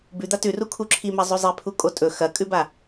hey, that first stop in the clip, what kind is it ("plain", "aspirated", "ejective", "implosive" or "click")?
plain